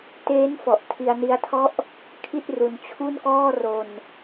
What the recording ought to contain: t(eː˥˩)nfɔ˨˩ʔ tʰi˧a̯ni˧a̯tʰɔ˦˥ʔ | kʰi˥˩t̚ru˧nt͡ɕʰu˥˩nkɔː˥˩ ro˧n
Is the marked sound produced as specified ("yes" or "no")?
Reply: no